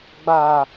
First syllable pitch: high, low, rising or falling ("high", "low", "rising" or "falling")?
high